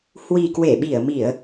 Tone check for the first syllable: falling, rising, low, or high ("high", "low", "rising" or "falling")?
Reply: low